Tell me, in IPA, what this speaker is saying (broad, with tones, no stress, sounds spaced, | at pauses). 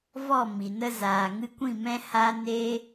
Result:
v ɔ˦˨ m i˨ n ə˧ z aː˨ ŋ ɨ˧ kʷ ĩ˦˨ m ɛ̃˦ h a˦ n eː˦